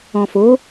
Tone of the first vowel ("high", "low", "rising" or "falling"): low